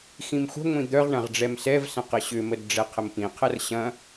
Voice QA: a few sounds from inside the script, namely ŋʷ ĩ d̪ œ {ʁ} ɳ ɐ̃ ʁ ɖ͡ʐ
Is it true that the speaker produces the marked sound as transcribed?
yes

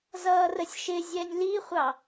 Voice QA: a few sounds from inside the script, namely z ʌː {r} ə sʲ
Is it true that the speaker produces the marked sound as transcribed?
yes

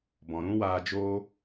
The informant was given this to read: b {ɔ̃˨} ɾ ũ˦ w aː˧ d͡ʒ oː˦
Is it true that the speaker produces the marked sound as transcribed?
yes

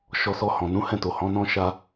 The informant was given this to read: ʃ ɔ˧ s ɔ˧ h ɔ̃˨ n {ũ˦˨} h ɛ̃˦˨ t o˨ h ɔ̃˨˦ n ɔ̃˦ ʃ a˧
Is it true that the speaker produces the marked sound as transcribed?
no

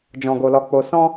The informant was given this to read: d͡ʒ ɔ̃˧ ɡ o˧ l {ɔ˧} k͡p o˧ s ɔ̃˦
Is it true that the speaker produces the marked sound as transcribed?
yes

